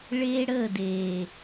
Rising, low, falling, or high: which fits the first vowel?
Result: high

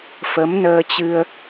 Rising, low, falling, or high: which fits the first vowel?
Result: rising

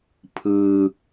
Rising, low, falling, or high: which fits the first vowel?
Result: low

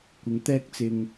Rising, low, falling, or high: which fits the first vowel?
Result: rising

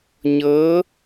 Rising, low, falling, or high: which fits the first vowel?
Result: rising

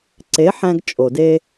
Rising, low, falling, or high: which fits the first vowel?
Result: rising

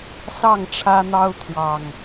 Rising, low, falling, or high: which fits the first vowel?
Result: falling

